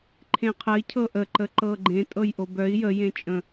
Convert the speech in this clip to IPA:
ǃʰ ẽ qʰ ə i̯ cʰ ɤ ʔ ə ǃ ə ǃ ɤ ɡ͡ǃ ẽ tʼ ɤ j ʔ o b œ i̯ j ə j ẽ t͡ʃʼ ə̃

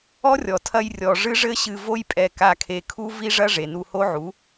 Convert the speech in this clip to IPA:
ɔ˦ rʲ ɔ˨ tʰ ɐ˧ j rʲ ɔ˨ ʐ ɨ˦ ʐ ɘ˦ ɕ ɨ˧ v o˦ j pʼ ɛ˧ k a˧ kʰ e˧ kʰ u˦ v i˦ ʐ ɐ˦ ʐ e˨ n u˧ h o˦ ʕ u˨˦

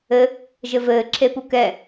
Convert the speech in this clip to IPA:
ɘ | ʒ ɘ v ɘː ǁʰ e p u k ɛ

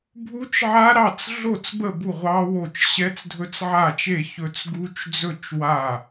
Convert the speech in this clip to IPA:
bʱ u˦˥ t͡ʃ ʕ a˦˥ ɾ ɑ˥˩ t͡s ɮ o˥˩ t͡s b ə˥˩ b u˥˩ ʁʷ ɑ˦˥ w o˥˩ t͡ʃ ɕ ɛ˦˥ t͡s dʱ ɵ˦˥ t͡s ʕ a˥˩ t͡ʃ e˥˩ ç ɵ˦˥ t͡s ɡ u˦˥ t͡ʃ d͡z ɵ˥˩ t͡ʃ w a˥˩

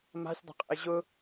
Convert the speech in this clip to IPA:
m a̤ sʲ dˤ ə̤ qʼ ə̰ ɪ̯ ʑ ʊ

